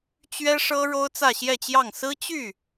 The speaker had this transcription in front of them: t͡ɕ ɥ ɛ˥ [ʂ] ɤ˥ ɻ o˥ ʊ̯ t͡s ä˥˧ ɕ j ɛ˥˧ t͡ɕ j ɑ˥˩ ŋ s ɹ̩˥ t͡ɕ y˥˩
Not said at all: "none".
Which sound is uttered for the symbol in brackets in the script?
ʂ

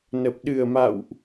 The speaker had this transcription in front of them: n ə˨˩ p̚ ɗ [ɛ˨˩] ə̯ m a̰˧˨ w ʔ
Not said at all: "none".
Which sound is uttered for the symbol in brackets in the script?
ɨ˨˩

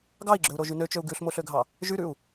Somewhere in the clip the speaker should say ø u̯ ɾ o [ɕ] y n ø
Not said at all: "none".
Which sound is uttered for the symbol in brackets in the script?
ʒ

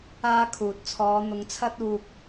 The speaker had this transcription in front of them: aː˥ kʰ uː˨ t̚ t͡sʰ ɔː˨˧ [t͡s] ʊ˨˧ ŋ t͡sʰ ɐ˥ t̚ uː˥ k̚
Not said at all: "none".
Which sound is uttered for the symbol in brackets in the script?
n̪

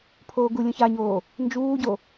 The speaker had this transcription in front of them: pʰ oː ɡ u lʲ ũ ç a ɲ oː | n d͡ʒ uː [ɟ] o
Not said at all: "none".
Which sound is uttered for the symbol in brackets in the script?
ɟ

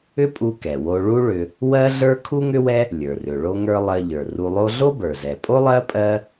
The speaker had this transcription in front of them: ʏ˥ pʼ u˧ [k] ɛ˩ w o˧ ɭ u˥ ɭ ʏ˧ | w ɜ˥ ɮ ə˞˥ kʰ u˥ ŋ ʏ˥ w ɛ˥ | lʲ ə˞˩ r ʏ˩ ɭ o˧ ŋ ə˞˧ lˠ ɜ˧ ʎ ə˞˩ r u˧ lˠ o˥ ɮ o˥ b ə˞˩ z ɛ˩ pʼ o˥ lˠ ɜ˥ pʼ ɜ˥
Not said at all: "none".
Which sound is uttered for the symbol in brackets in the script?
k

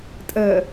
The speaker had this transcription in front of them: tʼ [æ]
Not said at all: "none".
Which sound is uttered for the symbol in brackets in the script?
ɜ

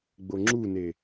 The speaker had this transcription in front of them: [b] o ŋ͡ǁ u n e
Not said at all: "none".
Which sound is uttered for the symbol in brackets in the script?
ɡ͡b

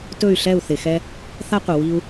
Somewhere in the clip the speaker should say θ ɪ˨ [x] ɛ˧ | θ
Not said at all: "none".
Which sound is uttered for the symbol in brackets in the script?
x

